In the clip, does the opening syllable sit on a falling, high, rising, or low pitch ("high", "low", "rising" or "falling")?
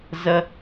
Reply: high